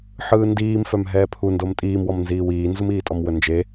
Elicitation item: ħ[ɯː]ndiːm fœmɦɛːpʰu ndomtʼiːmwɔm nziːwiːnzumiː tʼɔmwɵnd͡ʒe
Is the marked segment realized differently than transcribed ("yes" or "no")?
no